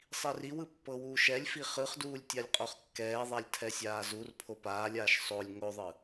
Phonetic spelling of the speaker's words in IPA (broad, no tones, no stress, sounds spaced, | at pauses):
sˤ i r i w ɯ pː ɤ w uː ʃ ɛ lʲ f i χ ɯ χ d uː lʲ tʲ a lʲ qʼ o χ kː ɛː ðˤ a lʲ tʰ ɛ sʲ aː z u r pʰ o p aː lʲ aː ʃ sˤ o lʲ ŋ o ðˤ ɯ